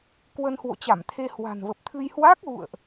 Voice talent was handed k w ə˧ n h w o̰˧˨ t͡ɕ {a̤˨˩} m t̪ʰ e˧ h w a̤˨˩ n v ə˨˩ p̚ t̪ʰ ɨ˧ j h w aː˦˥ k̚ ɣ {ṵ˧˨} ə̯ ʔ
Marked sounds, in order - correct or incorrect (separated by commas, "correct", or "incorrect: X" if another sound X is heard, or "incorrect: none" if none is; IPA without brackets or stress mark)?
incorrect: a˧˩, correct